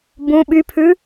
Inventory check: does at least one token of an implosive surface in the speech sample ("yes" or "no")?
yes